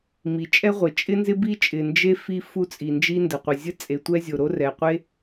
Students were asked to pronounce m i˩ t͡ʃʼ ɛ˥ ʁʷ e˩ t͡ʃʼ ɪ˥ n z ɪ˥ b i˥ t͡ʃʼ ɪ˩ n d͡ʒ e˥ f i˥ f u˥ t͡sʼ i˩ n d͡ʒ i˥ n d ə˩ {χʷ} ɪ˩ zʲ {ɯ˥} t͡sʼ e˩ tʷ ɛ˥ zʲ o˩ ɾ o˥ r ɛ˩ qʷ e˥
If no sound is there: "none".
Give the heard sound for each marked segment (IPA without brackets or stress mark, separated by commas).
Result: qʷ, ə˥